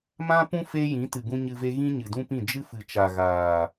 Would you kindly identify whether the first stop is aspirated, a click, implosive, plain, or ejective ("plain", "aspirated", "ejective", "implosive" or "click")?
plain